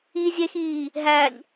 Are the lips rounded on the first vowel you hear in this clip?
no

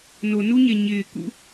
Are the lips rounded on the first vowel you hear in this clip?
yes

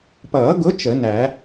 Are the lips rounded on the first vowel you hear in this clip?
no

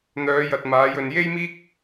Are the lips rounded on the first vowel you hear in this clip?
yes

